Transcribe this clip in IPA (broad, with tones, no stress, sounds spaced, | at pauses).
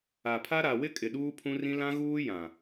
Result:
a˨ pʰ a˦ ɾ a˨ w ɪ˦ kʼ ɪ˨ ɗ uː˦ pʰ ũ˦ r ĩ˦ l ã˦ ɣ uː˦ j ã˨